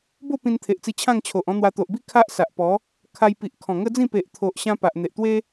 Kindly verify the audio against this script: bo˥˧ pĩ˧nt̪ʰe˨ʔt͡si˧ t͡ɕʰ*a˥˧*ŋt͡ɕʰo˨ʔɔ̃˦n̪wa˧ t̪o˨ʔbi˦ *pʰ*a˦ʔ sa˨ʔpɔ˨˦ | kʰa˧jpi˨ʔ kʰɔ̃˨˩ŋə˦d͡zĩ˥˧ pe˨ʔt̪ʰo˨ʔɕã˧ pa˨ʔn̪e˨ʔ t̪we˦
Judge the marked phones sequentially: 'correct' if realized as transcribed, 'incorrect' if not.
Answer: incorrect, incorrect

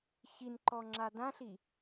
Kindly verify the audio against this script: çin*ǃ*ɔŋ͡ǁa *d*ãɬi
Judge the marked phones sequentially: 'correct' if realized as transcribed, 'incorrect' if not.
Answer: correct, correct

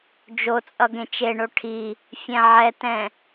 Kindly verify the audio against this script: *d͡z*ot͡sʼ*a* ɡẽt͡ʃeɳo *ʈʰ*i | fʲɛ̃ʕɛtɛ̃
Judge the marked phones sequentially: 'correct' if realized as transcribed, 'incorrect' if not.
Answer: incorrect, incorrect, correct

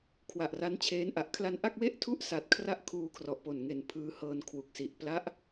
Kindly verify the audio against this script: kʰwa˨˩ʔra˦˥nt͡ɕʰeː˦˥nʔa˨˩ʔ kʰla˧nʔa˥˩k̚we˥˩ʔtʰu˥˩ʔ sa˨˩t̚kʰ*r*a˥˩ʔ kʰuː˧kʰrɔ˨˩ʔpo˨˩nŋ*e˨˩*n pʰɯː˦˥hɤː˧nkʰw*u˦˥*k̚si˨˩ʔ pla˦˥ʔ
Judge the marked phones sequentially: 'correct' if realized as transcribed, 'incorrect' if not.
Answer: correct, correct, incorrect

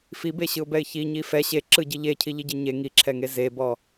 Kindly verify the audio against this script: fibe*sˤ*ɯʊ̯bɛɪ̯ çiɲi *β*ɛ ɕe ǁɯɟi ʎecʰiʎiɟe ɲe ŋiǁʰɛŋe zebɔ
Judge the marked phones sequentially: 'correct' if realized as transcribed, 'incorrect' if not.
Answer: incorrect, incorrect

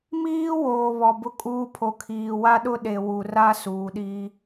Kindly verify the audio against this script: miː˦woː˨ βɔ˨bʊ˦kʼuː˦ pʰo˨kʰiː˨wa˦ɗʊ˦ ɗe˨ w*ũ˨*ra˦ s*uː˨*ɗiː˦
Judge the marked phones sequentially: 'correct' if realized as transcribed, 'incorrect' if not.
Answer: incorrect, correct

